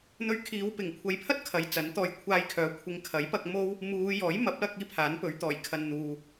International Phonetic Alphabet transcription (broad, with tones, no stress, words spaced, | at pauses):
n̪ɵ˧ɥ kʰiː˨˧wpɪ˨˩ŋ kʷʰɐ˨jpʰɐ˥t̚ kʰɐ˨˧jt͡sɐ˨˥nt̪ɔː˧j kʷʰaː˧jkʰœː˨˥ kʷʰɪ˨˧ŋkʰɐ˨˥jpɐ˧k̚ mo˥w | muː˨˧ jɔː˨˥jmɐ˨˥p̚lɐ˧k̚ iː˥pʰaː˨˥npɵ˨˥ɥt̪ɔː˨˩j kʰɐ˨nn̪uː˨